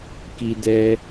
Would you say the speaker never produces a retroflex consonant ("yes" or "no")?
yes